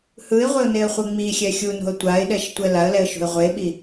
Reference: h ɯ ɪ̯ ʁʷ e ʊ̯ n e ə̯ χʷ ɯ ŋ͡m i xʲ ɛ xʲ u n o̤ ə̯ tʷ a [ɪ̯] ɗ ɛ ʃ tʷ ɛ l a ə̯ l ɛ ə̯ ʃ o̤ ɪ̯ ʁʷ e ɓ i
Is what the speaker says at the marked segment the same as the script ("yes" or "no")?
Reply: yes